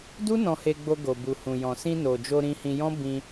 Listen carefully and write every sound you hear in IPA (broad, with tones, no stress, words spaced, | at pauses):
du˦ nɔ̃˧he˧ɡ͡bo˧ ɡo˨bu˨hũ˨jɔ̃˨ sĩ˧no˨d͡ʒo˧ ɾĩ˧hĩ˧jɔ̃˦ bĩ˧